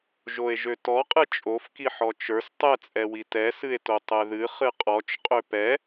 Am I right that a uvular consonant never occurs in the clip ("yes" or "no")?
no